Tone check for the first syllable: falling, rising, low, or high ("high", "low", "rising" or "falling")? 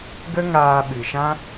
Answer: high